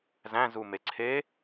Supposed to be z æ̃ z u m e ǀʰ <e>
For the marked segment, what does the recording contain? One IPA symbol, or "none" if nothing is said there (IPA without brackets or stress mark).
e